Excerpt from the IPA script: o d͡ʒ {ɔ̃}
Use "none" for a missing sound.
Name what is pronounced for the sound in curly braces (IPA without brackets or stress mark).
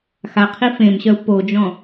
ɔ̃